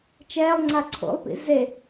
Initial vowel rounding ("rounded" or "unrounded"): unrounded